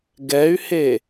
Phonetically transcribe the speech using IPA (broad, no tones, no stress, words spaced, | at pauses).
ɡɛy̯he